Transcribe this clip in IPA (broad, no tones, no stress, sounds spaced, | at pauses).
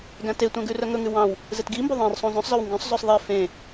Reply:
ɡ æ̃ t e tʷ æ̃ ɡ ʉ r œ ŋ ɵ ŋ ʉ w ɑ̃ w | z e t ɡ i m b o ðˤ ẽ r sˤ ũ z œ̃ sˤ z œ w ŋ ɡ œ̃ sˤ z ɵ sˤ ðˤ e f ẽ